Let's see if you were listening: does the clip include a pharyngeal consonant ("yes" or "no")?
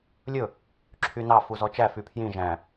no